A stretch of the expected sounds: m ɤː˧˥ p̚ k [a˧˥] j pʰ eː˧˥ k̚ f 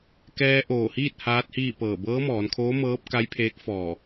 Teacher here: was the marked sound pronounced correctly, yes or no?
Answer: yes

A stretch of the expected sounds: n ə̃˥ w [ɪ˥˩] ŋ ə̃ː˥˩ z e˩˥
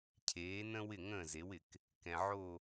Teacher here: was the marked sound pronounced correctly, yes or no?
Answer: yes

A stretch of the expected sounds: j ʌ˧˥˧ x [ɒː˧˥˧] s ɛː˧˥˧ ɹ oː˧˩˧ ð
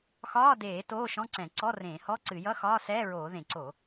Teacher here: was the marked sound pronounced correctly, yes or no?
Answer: yes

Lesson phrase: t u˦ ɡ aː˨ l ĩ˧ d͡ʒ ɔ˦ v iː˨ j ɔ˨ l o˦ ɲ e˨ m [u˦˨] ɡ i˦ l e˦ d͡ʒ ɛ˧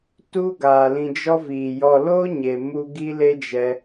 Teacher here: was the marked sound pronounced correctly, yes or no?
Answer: no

